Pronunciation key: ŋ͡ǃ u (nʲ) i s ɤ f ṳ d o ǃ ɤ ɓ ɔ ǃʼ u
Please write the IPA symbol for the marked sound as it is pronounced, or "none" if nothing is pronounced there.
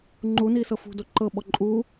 n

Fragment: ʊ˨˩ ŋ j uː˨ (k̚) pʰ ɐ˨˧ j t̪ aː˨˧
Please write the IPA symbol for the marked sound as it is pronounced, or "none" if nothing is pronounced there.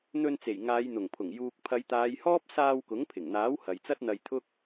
k̚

